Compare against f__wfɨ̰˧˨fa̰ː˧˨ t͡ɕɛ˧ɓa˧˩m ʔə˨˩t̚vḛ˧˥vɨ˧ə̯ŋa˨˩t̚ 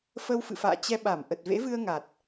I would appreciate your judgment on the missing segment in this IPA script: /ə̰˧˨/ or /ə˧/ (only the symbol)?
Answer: ə˧